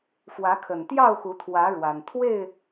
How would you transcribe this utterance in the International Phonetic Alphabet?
f w ä˨˦ kʰ ə˨˩ n t̪ j ɑ˥˨ ʊ̯ x u˨˦ t̪ʰ w ä˨˦ ɻ w a˨˩ n t̪ʰ w e˥˨ ɪ̯

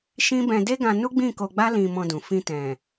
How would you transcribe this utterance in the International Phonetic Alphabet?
ʃ ĩ˦ b ɛ̃˧ d e˦ ɡ ã˧ n u˦ ɡ͡b ĩ˦˨ k o˧ ɡ͡b a˦ l ĩ˧ m ɔ̃˧ d ũ˨ f ĩ˧ t ɛ̃˨

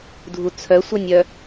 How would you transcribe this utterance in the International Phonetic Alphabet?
dʱ u t͡sʰ œ sʷ œ nʲ œ

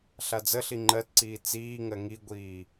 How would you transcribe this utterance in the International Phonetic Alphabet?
ɬ a d͡z ə ɬ i ŋ͡ǃ ɜ t ǀ iː t͡s iː ŋ ɜ ŋ i ɡʷ iː

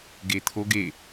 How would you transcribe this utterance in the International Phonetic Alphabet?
ɡ e t̪ʰ o ɡ e

